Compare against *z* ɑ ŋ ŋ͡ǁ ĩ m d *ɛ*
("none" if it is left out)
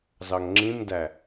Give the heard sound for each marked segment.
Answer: z, æ

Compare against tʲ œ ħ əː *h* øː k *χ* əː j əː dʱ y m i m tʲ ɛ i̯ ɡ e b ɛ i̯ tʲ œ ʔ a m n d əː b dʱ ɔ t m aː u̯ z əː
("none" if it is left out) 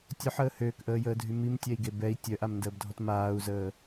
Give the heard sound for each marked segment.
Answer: h, ʔ

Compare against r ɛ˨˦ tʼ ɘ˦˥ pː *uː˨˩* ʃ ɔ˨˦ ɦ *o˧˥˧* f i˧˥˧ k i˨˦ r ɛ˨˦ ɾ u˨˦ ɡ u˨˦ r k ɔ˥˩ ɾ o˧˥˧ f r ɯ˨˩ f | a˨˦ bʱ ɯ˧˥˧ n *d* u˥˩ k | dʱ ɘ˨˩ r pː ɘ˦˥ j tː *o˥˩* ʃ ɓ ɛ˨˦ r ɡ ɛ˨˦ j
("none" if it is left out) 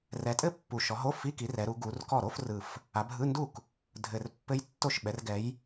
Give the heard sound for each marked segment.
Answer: u˨˩, o˧˥˧, d, o˥˩

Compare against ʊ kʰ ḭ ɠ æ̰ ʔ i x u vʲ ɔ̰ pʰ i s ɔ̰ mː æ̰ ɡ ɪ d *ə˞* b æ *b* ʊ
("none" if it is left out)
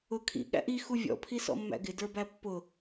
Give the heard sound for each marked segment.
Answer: ə˞, pː

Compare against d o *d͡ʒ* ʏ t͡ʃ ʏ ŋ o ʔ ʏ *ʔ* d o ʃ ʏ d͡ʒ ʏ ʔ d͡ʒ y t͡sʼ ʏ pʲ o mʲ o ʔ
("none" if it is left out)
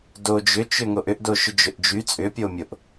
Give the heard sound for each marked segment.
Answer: d͡ʒ, ʔ

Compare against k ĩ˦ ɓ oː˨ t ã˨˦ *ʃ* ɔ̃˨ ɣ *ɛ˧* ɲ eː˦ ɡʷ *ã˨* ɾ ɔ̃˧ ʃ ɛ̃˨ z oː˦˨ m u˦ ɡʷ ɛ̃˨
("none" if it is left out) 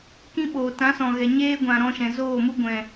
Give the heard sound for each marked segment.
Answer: s, ɛ˨, ã˨

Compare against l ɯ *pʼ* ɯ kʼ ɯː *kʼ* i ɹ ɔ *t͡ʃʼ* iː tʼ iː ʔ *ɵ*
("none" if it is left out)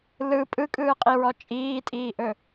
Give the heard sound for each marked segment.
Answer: pʼ, qʼ, t͡ʃʼ, ɵ

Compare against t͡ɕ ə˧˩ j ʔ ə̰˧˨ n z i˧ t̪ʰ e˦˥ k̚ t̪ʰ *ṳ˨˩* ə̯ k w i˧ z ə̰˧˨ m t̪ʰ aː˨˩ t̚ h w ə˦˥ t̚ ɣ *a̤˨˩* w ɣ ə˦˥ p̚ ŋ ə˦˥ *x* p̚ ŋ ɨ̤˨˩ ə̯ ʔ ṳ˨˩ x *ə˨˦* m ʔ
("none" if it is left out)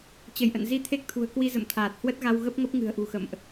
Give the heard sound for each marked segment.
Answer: ṳ˨˩, a˧, none, ə̰˧˨

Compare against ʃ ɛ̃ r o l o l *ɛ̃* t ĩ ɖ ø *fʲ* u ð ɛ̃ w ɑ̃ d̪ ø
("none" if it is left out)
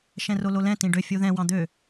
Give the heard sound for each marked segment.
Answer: ɛ̃, fʲ

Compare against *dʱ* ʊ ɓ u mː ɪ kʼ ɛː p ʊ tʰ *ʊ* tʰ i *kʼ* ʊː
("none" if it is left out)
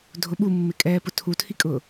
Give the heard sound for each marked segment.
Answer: dʱ, u, kʼ

